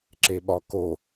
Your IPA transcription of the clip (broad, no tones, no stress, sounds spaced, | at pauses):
ǁ e ɓ ɒ k o